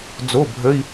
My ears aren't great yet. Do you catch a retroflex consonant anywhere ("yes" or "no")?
no